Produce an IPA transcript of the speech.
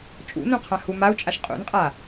t͡ʃʼṵnũqʰã humau̯t͡ʃʼaʃ qʼṵnqʼa

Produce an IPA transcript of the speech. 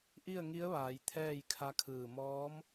ʔi˥˨ə̯ŋi˧˥ə̯ʋaː˩˧j t̪ʰɛː˥˨jkʰa˧˥kʰɯː˧˩ mɔː˧˥m

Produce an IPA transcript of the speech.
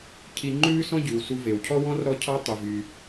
cʰi˧ŋ͡ǃʉː˥sɔ̃˥ɟʉ˩w su˧ve˩wcʰɔ˥wɔ̃˥r ɾɔ˧cʰɑ˧ tˤy˩ vy˩

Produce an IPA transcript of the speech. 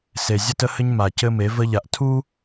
se˨zʲə˦tə˦hɘ˦ɲ ma˨cɘ˦me˨˦ və˦ʎa˨ʔ tʰu˦

